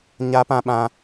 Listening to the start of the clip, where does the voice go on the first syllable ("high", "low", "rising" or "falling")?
high